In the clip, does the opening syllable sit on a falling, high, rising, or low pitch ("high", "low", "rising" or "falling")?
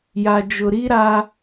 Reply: low